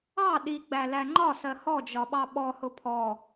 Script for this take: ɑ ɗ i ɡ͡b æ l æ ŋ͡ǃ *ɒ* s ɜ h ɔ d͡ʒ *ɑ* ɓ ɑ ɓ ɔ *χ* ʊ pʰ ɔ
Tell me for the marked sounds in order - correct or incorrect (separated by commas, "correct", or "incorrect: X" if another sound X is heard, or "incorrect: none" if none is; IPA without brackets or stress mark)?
correct, incorrect: ɒ, incorrect: h